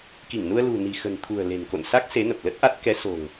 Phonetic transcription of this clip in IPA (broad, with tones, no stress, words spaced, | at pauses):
ki˧˩ŋnu˧ə̯ lṳ˨˩ni̤˨˩xə̤˨˩nt̪ʰṳ˨˩ə̯ le̤˨˩nko̰˧˨nsa˦˥k̚ se˨˦nə˨˩p̚lə˦˥t̚ʔa˦˥t̚ kɛ˨˦so̤˨˩ŋ